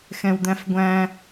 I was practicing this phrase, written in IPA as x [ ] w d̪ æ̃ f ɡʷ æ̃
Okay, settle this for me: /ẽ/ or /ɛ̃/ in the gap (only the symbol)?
ɛ̃